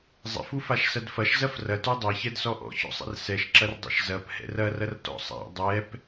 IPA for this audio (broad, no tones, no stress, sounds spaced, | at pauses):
zˤ ɛ̰ f u f a ʃ s ɐ d f ɐ ʃ z ɐ f r ɐ t u dˤ a ç ɛ d s ɔ ʔ ɔ̰ ç ɔ̰ sˤ ɛ̰ r s ɛ ʃ ǁ ɐ r dˤ ɛ̰ ʃ z ɐ p h ɛ̰ r ɐ r ɐ r t ɔ̰ sˤ a̰ dˤ ɛ p